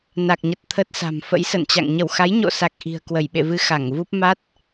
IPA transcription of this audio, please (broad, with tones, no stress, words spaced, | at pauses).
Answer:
na˨˩k̚ɲə˨˩t̚ t̪ʰə˦˥t̚sa̤˨˩m fə̰˧˥jsə̰˧˨nt͡ɕa̰˧˨ŋ ɲə˧˩wxa˨˦jɲo̰˧˨sa˨˩k̚ ʔi̤˨˩ə̯kwə˧˩jɓḛ˧˨vɨ˧ xa˧˩ŋvu˦˥p̚ ma˦˥t̚